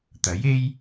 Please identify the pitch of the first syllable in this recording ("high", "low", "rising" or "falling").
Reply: rising